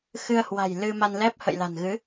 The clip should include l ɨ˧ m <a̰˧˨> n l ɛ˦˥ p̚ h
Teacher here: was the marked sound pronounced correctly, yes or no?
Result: no